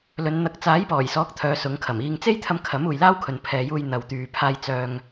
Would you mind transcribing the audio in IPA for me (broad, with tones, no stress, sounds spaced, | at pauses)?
l ɵ˨˧ n n̪ ɐ˧ k̚ t͡s aː˨˥ j p ɔː˨˩ j s ɔː˨˥ k̚ t̪ʰ œː˨˧ s ʊ˨˧ ŋ kʰ ɐ˨˩ m iː˧ ŋ t͡s e˥ j t̪ʰ ɐ˧ m kʰ ɐ˨˥ m uː˨ j l aː˥ w kʰ ɵ˨ n pʰ ɛː˨ j uː˧ j n̪ ɐ˨ w t̪ yː˨ pʰ aː˧ j t͡s œː˧ ŋ